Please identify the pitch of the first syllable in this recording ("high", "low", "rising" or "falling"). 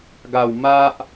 falling